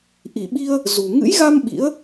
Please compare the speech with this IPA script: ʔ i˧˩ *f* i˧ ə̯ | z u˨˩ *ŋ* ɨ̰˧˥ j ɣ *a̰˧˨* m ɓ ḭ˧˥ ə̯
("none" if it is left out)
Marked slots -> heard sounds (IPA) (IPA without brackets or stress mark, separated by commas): ɓ, ŋ, a˧